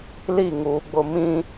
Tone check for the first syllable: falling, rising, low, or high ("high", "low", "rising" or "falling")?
falling